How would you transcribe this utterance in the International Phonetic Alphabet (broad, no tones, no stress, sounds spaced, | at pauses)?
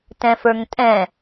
t ɛ̃ f ə˞ ŋ tʼ ɛ̃